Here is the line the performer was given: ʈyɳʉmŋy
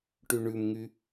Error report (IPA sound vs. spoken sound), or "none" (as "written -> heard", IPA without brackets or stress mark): none